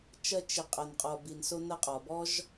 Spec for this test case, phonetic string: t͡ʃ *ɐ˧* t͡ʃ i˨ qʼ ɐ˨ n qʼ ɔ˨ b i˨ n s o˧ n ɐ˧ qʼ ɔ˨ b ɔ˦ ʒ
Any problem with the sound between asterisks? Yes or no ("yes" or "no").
no